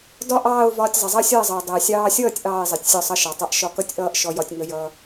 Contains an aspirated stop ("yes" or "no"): no